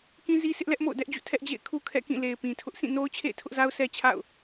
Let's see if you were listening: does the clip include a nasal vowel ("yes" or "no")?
yes